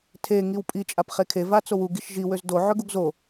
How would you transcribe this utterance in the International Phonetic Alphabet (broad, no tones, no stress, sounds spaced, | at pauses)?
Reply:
tʰ e ŋ i w pʼ i t͡ʃʼ a p χ e kʰ e v a t͡s o w u ɡ i ʃ ʒ i w ø z d o ʕ ø ɡ u ɡ z o